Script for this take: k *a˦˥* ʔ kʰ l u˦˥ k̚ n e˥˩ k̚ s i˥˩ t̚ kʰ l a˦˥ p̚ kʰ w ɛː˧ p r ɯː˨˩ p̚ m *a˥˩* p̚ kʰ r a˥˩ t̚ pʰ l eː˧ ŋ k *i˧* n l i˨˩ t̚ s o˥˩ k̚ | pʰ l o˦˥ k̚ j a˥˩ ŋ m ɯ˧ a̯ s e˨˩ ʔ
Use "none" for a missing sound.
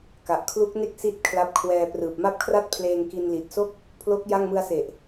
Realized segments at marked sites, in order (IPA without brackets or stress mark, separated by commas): a˨˩, a˥˩, i˧